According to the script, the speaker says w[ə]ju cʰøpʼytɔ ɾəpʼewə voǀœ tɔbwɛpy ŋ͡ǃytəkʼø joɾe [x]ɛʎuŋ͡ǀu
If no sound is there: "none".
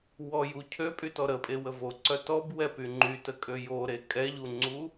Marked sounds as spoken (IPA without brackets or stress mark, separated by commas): ɔ, kʼ